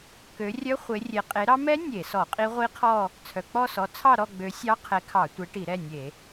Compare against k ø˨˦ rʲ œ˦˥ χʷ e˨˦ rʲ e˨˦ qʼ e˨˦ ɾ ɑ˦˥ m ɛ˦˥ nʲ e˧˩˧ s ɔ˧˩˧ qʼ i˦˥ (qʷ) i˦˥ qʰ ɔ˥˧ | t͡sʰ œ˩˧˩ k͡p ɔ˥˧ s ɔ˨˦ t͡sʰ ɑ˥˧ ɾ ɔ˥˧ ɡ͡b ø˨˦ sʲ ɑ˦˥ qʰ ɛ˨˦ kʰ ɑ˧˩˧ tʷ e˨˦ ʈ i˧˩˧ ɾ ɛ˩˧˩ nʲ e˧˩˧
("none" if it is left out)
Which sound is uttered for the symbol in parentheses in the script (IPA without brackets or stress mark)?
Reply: ʁʷ